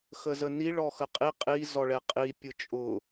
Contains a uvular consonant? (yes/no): yes